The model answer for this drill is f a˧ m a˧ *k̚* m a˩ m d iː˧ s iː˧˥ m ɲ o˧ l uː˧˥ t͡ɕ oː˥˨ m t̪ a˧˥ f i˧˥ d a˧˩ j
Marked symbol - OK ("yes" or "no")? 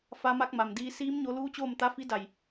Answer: yes